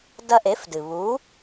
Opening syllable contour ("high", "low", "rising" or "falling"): high